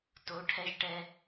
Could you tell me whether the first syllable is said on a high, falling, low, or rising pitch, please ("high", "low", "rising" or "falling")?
rising